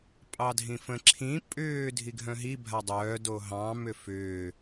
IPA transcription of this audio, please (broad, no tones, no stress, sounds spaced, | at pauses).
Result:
pʼ ɑ dʱ ĩ f ə̃ ǁʰ ĩ pʼ ʏː dʱ i ɡʱ œ̃ ɦ i bʱ a dˤ œː d o ɦ ɑ̃ m ʏ f ʏː